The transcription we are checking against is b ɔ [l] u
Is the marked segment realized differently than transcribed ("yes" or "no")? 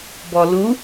no